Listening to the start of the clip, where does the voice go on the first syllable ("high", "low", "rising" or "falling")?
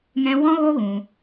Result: high